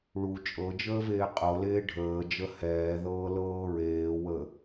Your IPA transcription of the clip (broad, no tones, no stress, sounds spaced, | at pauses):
ɭ u t͡ʃʼ ɤ d͡ʒ əː v eː qʼ ɤ l eː ɖʱ əː d͡ʒ ə h ɛː ð ɤː l ɤː ɹ eː w ə